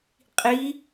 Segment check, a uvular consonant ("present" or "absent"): present